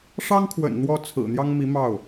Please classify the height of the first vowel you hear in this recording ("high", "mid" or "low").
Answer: low